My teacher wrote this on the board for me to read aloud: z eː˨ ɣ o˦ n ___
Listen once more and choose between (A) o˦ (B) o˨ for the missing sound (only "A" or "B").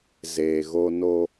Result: A